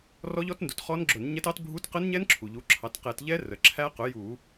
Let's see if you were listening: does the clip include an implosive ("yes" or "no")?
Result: no